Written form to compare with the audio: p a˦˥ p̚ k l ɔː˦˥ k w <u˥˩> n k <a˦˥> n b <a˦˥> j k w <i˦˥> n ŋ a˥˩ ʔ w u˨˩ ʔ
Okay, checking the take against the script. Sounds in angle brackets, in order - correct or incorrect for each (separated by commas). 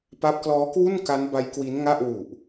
correct, correct, correct, correct